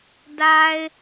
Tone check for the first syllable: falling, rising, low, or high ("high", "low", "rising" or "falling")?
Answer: low